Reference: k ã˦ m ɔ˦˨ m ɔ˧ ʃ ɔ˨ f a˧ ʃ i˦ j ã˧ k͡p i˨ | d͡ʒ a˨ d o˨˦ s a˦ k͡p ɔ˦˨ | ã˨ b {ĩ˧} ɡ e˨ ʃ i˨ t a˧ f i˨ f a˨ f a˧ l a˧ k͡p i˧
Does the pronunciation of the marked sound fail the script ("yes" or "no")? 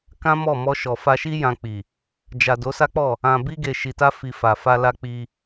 yes